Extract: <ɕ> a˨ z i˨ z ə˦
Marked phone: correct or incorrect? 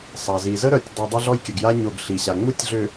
incorrect: sˤ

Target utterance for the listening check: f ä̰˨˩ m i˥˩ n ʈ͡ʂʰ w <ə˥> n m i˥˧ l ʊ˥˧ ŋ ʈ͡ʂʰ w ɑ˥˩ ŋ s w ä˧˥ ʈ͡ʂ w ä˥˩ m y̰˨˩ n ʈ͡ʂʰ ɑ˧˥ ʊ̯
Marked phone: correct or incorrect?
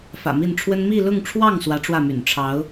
correct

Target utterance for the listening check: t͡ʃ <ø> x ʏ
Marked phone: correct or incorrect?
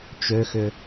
correct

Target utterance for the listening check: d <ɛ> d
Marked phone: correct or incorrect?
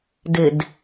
incorrect: ɪ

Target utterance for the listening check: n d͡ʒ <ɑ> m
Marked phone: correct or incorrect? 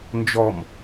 incorrect: ɔ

